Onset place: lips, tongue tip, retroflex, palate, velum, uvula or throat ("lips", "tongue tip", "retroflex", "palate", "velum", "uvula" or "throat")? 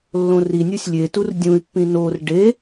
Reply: tongue tip